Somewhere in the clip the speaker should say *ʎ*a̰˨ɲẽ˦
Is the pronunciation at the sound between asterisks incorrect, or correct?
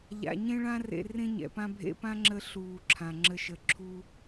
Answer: correct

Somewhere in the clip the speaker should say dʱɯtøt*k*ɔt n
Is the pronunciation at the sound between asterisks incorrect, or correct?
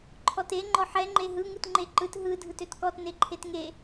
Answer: correct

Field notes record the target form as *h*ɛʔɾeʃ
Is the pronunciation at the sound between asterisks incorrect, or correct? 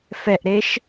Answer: incorrect: f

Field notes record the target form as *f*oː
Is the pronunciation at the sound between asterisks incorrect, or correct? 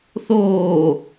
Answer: incorrect: θ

